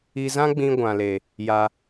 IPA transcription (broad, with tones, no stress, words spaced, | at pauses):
i˧zã˦ɡ͡bĩ˧ ɡʷã˨le˨ | ja˧